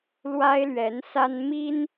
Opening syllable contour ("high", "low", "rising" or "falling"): high